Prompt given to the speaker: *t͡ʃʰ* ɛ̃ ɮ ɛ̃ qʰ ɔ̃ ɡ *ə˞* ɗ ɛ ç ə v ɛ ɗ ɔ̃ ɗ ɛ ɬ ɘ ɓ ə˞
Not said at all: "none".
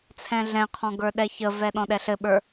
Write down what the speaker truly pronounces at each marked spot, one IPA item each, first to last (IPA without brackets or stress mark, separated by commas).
t͡sʰ, ə˞